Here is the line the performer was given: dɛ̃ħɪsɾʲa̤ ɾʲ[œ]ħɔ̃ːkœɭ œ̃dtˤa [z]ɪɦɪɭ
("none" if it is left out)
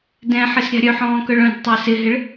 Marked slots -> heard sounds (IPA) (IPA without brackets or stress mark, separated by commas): œ, s